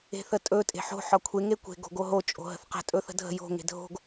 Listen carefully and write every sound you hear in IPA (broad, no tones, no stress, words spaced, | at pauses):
e̤θətʼɵ tʼe̤ħo̤ ħɒkʷʰe ŋekʷe̤ ɡo̤ɡoɦo t͡ʃʼo̤ɦə̤θqə̤ tʼɵθə̤dʱə̤ jo̤ ŋe̤dʱo̤ɡ